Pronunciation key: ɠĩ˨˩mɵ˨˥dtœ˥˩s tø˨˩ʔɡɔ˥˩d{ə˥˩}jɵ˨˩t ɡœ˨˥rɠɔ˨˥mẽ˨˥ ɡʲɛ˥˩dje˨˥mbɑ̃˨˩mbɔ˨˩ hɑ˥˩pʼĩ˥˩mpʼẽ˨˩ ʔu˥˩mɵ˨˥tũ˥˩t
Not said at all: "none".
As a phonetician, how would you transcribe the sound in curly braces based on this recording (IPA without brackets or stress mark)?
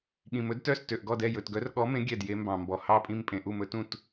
ɛ˥˩